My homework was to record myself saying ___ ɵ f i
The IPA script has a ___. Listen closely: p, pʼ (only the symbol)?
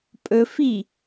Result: pʼ